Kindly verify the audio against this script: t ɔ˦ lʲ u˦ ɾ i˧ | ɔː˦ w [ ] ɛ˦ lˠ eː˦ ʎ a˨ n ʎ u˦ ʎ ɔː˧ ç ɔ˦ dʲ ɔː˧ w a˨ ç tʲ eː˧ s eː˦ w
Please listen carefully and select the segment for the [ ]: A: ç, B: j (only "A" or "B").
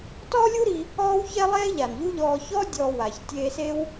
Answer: A